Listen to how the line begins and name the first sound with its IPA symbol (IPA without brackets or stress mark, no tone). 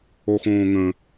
o